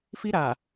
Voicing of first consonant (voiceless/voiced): voiceless